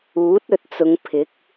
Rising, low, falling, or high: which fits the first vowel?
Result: rising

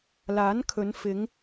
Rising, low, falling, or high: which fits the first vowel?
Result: rising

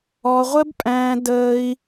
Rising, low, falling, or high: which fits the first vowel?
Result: high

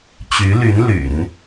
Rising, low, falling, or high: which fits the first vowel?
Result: rising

